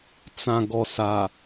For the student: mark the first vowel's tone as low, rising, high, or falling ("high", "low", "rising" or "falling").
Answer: low